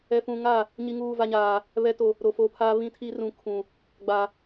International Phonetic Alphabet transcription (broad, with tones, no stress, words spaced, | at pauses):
ɛ˨fũ˨ŋa˦˨ | ɲi˨ŋuː˨va˨ɲaː˨ | βɛ˨to˨ | ɾo˨fo˨˦pʰa˦ βĩ˦tʰi˦rũ˨ kʰũ˨ | ɡ͡ba˨